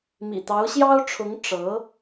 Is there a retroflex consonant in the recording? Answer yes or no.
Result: yes